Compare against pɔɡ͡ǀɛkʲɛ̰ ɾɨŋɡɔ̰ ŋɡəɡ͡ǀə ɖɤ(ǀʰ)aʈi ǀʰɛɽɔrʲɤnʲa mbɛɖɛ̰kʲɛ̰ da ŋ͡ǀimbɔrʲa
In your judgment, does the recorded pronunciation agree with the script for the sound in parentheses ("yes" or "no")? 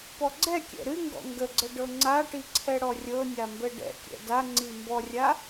no